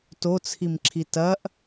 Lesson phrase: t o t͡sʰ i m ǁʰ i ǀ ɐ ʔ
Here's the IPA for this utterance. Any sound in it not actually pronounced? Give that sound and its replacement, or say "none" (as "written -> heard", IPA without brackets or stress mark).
ǀ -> t